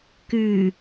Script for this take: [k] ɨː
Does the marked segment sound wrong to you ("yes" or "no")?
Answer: no